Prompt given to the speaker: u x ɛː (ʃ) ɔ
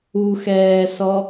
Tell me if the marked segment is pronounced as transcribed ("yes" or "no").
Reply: no